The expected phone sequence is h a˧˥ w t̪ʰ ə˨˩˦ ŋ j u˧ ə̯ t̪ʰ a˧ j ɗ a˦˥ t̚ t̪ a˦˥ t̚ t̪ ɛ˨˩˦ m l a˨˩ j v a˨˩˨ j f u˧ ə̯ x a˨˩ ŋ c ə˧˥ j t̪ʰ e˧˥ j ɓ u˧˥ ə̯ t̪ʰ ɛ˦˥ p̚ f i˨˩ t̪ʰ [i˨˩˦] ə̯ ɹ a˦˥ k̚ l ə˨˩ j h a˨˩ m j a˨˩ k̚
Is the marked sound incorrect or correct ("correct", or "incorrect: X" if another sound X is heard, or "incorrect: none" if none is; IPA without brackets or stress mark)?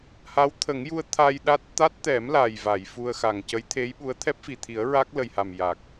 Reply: correct